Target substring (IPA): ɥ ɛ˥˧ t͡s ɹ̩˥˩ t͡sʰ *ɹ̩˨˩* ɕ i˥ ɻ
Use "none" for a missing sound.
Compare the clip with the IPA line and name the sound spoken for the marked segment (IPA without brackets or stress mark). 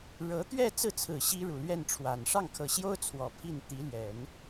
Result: ɹ̩˨˩